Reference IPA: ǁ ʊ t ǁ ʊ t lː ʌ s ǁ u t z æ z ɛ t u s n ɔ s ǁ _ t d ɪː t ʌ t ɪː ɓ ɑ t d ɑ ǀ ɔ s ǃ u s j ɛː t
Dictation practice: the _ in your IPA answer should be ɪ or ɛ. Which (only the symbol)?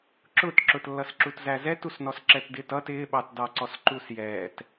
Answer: ɛ